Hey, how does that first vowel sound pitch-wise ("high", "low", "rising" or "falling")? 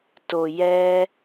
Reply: low